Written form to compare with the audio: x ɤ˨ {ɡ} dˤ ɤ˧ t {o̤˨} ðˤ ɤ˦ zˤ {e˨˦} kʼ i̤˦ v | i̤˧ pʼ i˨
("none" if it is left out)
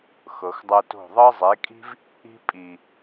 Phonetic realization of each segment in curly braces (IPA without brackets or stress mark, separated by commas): x, o̤˦˨, e˨˦